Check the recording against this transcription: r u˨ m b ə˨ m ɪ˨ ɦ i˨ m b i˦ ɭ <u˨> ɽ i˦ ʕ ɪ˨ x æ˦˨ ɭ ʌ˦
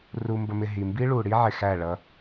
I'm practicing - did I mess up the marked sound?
no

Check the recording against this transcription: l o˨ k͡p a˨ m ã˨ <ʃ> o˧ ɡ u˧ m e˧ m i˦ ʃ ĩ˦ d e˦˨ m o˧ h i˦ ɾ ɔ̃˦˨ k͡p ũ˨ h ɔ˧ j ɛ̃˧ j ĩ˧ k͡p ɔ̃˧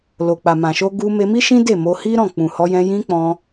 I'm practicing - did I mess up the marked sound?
no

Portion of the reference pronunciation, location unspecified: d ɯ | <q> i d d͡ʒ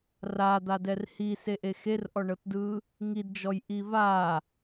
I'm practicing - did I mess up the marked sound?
yes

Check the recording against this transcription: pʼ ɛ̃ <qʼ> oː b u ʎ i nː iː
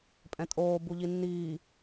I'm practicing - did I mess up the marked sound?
yes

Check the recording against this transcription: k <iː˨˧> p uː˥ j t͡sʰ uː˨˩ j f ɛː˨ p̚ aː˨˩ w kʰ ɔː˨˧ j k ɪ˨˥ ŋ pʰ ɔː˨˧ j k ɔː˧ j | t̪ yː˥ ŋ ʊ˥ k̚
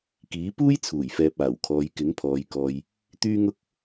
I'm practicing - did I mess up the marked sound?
yes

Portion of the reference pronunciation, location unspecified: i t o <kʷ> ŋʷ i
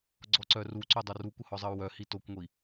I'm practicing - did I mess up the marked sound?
no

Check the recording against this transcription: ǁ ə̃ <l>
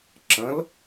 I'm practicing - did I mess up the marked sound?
no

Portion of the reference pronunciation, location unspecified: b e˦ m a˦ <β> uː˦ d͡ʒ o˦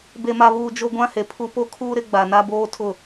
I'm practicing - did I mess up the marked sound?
no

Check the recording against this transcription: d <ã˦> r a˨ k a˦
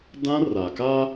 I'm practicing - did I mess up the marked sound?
no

